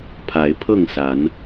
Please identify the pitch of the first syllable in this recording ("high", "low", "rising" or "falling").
rising